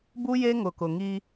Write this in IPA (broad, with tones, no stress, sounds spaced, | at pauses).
b u˦ j e˦ ŋ ʊ˨ k ʊ˨ ŋ i˦